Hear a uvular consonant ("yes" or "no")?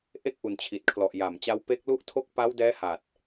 no